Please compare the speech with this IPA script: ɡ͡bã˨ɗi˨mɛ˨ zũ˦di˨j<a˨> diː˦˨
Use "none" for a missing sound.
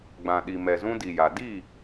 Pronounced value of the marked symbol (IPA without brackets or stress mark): a˨